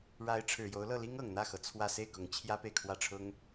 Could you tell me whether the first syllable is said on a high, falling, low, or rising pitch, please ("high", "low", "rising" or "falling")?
rising